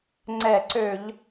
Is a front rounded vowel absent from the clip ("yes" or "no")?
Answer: no